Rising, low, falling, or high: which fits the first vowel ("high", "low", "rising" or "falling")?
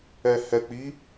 low